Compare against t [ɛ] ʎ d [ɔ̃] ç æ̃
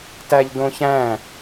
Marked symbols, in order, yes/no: no, no

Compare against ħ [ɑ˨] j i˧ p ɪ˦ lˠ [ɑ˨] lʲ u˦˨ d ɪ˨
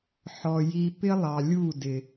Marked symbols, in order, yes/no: no, yes

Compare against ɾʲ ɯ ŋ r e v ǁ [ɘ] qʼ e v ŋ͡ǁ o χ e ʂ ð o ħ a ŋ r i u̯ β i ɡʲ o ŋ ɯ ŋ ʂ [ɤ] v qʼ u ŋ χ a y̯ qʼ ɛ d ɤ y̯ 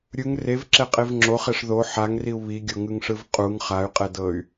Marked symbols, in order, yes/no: no, no

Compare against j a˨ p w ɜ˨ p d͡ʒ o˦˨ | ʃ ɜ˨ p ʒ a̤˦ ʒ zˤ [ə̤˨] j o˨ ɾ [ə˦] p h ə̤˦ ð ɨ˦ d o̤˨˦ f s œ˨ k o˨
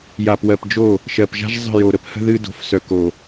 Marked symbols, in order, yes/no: no, yes

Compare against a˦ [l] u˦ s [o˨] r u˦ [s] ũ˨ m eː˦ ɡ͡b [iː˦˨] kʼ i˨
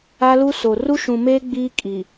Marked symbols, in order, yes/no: yes, yes, no, no

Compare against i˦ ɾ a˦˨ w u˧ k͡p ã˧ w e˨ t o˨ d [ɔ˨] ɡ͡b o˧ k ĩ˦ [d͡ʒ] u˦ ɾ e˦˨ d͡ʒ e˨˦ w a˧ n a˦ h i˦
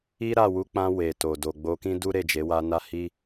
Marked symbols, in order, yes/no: no, no

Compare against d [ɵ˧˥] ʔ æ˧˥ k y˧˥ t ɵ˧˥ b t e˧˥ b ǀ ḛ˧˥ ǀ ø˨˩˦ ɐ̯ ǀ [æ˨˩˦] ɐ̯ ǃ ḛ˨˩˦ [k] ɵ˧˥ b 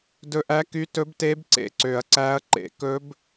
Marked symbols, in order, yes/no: yes, no, yes

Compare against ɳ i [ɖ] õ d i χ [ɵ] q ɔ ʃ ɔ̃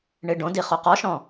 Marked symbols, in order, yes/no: yes, no

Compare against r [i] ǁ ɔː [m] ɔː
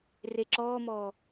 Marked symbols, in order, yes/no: no, yes

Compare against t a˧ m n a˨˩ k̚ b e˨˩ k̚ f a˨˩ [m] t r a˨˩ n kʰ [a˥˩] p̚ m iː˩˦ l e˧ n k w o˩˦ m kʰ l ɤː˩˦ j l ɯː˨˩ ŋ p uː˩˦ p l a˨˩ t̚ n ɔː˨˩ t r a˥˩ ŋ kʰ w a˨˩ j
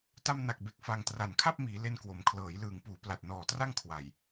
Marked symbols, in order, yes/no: no, yes

